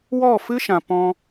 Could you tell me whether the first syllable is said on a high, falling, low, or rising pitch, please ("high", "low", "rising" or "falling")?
falling